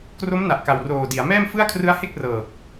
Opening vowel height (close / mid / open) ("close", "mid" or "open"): mid